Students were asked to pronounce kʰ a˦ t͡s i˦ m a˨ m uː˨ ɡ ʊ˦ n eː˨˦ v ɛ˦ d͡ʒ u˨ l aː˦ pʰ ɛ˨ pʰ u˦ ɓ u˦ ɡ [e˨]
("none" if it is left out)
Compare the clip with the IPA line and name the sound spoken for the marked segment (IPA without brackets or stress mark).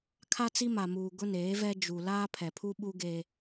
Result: e˦